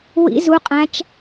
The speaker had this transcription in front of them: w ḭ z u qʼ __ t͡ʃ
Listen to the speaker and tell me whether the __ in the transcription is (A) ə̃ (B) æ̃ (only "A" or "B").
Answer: B